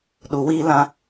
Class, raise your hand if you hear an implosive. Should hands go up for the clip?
yes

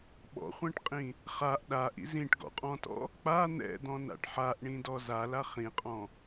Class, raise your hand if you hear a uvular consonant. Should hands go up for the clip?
yes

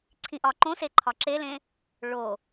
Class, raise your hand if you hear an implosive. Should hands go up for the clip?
no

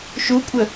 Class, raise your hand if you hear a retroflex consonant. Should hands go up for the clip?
no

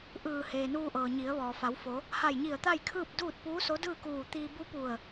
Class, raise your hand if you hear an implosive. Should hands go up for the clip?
no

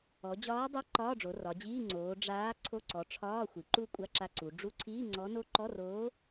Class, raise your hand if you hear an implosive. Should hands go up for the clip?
no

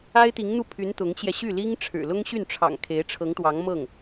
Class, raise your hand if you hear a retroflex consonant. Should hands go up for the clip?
yes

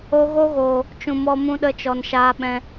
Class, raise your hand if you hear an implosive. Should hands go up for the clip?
yes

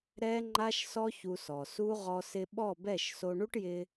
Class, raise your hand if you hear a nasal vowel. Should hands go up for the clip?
no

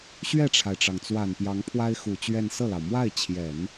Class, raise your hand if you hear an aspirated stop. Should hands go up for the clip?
yes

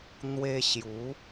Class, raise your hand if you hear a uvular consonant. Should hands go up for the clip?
no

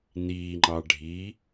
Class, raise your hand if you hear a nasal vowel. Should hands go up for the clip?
no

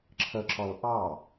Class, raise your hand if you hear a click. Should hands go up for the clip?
yes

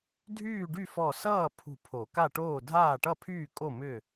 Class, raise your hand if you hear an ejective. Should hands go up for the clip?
yes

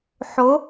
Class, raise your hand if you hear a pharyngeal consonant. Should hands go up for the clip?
yes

